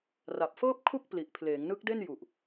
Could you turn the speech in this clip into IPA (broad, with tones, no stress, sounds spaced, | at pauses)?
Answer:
r a˨˩ p̚ f ɤː˥˩ p̚ kʰ u˥˩ k̚ p l i˨˩ ʔ pʰ l eː˩˦ ŋ n ɯ˦˥ k̚ d e˥˩ n j u˨˩ ʔ